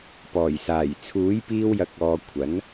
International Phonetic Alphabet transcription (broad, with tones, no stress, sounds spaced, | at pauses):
p ɔː˨˩ j s aː˨˩ j t͡sʰ uː˨˥ j p iː˧ w j ɐ˨˥ k̚ ɔː˨ kʷʰ ɐ˨˥ n